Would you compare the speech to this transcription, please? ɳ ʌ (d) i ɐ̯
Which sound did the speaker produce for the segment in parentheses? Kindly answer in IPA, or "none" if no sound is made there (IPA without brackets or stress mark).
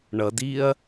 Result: d